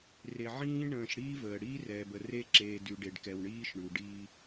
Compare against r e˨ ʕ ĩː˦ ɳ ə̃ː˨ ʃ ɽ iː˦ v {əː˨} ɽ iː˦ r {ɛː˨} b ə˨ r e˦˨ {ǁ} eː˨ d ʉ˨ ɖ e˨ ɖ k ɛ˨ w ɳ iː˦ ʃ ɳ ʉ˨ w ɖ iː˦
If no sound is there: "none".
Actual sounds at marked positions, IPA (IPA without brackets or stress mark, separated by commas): əː˨, ɛː˨, ǁ